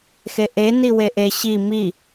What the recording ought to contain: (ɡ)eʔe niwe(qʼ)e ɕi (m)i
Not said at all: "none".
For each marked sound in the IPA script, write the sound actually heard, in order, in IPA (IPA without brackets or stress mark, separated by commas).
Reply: x, ʔ, m